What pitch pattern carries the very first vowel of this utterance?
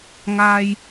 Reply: high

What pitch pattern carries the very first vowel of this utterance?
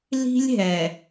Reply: high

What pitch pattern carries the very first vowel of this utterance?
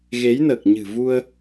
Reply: rising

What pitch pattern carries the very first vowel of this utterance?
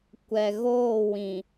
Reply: low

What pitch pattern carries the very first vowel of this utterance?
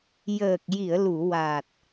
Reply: low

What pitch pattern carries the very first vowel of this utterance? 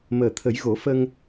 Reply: low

